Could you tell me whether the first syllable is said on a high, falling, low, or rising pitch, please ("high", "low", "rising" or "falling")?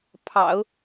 low